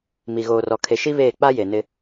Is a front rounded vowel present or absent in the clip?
absent